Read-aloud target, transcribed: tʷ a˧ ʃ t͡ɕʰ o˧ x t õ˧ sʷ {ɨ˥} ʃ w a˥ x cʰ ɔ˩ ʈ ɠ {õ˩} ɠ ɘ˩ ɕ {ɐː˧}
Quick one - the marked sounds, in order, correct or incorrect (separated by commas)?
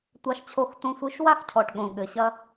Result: incorrect, correct, incorrect